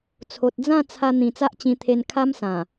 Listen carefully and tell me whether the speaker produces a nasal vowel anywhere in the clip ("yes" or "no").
yes